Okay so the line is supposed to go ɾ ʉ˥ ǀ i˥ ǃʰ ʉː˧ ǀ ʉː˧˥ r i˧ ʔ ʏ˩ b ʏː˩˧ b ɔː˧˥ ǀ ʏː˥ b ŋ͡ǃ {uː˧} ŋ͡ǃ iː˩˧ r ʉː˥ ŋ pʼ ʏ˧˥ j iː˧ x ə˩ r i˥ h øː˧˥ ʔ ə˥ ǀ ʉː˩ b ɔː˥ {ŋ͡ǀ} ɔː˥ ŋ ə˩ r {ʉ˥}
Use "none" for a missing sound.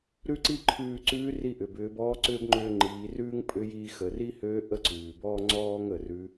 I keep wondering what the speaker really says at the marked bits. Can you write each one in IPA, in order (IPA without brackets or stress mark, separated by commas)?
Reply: ʏː˧, ŋ͡ǀ, ʉ˧˥